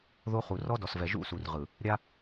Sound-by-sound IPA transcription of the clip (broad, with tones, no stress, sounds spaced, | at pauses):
ð o˦ χ u˨ r ɔ˦ d ɔ˨ s v ɛ˨ ʒ ṵ˦˨ s u˨ r ʁ ɯ˨ | ɾʲ a˦